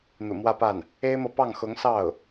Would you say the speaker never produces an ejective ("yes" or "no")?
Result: yes